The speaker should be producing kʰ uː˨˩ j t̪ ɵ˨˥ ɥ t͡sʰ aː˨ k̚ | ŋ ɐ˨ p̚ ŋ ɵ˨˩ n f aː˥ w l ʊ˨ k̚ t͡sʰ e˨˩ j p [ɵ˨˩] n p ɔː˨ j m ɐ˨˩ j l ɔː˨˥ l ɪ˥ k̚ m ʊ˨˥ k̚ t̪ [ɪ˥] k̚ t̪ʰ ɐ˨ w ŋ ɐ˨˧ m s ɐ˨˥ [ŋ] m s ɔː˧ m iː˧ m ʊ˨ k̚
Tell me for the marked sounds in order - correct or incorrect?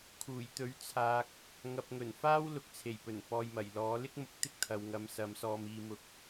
correct, correct, incorrect

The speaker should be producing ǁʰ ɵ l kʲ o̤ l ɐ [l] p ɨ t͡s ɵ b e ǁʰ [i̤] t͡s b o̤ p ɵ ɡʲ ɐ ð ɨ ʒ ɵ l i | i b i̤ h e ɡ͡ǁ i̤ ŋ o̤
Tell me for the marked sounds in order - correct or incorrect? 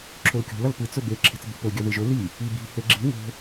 correct, incorrect

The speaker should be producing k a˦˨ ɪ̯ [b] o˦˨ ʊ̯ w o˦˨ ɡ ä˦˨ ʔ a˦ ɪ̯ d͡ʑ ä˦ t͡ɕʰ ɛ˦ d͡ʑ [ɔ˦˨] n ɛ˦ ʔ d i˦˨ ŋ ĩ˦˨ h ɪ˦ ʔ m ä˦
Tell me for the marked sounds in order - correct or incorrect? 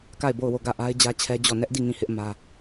correct, correct

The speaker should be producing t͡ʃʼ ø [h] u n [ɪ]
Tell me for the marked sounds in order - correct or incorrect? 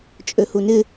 correct, correct

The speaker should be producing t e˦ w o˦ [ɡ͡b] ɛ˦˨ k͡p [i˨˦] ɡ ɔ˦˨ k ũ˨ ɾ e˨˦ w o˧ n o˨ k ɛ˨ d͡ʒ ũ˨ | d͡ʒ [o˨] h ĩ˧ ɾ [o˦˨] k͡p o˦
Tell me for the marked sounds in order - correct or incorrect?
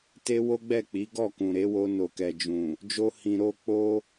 correct, correct, incorrect, incorrect

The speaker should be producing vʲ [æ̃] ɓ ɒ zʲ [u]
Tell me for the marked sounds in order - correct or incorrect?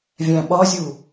correct, correct

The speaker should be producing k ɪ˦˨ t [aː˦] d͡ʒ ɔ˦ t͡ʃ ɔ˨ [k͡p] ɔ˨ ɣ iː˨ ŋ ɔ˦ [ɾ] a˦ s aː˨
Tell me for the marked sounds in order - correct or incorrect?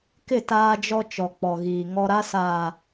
correct, correct, correct

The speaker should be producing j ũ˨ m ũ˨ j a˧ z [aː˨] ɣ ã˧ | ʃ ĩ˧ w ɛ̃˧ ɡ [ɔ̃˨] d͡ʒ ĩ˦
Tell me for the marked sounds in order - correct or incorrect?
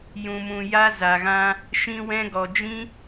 incorrect, incorrect

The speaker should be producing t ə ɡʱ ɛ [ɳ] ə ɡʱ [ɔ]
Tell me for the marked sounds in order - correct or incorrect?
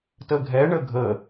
correct, incorrect

